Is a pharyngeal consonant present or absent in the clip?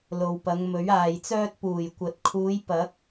absent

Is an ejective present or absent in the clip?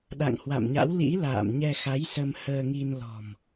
absent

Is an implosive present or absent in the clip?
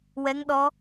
present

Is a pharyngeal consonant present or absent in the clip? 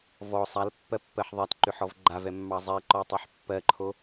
present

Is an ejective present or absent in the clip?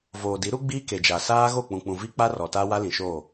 absent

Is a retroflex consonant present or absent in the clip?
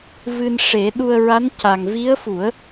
present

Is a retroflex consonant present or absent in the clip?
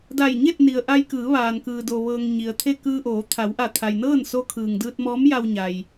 absent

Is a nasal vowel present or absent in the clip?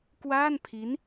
absent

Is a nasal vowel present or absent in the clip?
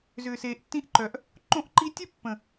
present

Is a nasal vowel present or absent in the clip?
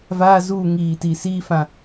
present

